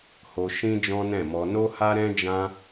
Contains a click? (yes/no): no